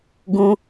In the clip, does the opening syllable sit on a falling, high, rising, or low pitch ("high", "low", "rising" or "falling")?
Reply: high